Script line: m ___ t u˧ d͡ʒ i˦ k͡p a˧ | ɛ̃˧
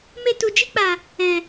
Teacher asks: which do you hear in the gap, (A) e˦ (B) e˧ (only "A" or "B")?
B